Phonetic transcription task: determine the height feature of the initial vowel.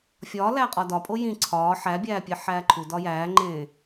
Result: low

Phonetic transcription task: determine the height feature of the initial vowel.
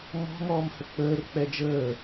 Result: mid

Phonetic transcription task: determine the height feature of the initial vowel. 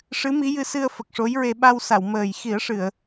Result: high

